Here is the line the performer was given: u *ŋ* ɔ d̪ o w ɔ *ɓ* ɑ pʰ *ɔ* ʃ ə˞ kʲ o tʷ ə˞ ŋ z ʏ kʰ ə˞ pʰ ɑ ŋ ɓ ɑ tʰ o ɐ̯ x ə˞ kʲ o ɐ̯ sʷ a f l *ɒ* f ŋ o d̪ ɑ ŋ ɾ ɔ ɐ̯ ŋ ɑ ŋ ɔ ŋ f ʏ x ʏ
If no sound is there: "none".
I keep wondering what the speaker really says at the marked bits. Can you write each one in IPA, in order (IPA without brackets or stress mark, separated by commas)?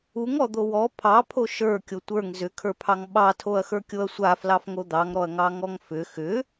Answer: ŋ, pʰ, o, ɑ